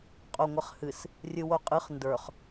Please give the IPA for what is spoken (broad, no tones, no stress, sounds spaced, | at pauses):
qʼ o ŋʷ ə χ h ɨ s | rʲ ɨ w o qʼ ɨ χ n d ə˞ χ